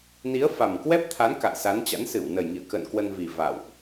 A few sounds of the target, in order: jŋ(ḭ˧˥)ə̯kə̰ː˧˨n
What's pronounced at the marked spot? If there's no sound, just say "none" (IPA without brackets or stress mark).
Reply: ḭ˧˨